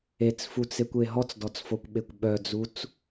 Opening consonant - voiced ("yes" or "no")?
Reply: no